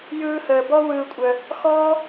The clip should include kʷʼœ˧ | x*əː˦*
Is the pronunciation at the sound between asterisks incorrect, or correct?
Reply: incorrect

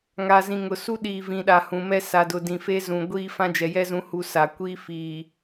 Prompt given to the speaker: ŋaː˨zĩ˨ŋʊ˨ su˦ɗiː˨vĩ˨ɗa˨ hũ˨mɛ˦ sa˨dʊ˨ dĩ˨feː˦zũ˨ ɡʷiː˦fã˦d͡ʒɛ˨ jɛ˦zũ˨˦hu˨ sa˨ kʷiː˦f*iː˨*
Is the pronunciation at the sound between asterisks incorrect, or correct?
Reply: correct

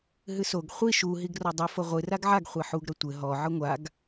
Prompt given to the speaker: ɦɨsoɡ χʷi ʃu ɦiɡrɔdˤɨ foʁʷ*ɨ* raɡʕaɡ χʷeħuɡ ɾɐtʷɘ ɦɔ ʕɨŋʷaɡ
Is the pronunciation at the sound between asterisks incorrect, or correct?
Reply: correct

